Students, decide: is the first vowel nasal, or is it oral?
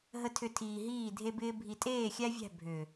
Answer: oral